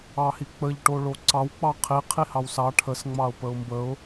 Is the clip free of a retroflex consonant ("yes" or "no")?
no